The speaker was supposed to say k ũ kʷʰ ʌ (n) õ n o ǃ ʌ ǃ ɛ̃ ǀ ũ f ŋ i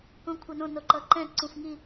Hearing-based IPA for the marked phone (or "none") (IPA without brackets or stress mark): n